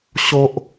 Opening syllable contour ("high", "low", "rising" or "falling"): high